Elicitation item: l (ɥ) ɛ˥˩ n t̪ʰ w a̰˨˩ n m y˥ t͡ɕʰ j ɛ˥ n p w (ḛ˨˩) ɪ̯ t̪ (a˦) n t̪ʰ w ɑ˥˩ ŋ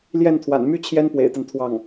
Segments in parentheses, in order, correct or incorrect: incorrect, correct, correct

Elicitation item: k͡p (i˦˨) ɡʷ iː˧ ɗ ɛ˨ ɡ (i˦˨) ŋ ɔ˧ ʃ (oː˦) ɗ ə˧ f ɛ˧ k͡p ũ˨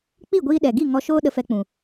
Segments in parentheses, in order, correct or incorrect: correct, correct, correct

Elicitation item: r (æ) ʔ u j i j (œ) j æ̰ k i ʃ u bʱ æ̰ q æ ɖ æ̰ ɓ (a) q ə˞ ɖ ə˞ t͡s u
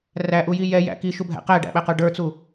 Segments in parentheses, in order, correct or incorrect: correct, incorrect, incorrect

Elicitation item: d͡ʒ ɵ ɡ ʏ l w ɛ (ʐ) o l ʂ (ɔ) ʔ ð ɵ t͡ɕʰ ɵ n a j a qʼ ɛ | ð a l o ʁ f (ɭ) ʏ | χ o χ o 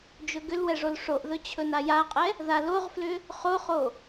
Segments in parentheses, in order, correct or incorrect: correct, incorrect, incorrect

